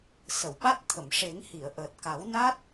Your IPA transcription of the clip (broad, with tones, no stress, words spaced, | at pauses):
sə˨˩˨wɓa˦˥t̚t̪ʰə˨˩˨mʂe˨˩˦ŋ hi˨˩˨ə̯ʔəː˨˩t̚ka˨˩˦wna˦˥t̚